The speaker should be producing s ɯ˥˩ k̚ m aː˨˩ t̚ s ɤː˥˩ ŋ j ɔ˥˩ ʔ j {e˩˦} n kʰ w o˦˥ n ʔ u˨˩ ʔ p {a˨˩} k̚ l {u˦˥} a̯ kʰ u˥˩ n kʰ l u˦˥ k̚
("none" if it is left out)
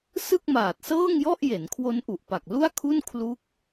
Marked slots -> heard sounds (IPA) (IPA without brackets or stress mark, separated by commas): e˩˦, a˨˩, u˥˩